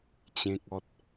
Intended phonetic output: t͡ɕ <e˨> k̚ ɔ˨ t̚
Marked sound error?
yes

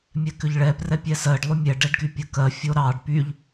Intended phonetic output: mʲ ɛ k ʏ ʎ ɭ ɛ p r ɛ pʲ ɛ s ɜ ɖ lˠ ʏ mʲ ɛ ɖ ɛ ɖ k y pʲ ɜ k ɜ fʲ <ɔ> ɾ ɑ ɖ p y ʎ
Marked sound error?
yes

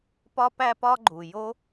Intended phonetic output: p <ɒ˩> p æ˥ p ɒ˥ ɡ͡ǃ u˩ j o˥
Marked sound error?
yes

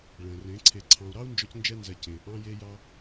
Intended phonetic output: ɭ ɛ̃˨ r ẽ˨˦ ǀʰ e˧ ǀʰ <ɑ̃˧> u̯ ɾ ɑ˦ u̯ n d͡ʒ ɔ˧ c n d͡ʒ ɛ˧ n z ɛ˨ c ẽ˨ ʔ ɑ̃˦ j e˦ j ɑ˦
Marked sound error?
no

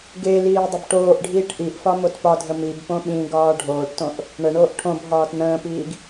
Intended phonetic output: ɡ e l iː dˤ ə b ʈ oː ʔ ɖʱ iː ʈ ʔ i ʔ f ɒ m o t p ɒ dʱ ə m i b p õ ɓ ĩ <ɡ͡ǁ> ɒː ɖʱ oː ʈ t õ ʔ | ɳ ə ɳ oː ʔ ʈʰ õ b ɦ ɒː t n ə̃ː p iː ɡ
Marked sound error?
yes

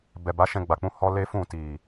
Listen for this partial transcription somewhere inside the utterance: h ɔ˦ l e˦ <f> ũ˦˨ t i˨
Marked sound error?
no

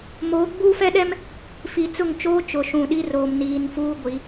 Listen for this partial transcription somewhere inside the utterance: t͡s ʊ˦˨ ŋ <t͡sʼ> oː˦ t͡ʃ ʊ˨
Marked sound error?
yes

